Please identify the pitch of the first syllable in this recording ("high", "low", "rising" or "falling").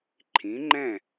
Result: rising